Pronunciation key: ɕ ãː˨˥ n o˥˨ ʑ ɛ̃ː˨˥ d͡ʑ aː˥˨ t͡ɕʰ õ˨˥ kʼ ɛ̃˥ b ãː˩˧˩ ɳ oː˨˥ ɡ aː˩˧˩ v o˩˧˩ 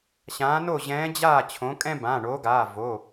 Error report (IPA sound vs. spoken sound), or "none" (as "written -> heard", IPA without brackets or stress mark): none